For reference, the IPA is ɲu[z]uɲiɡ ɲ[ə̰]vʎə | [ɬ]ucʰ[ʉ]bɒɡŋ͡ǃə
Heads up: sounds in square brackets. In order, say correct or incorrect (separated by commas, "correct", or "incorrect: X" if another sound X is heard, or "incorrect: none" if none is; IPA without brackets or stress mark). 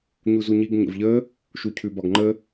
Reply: correct, correct, incorrect: ʃ, correct